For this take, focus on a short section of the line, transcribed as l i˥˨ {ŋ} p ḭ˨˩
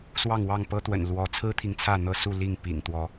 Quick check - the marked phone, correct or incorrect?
correct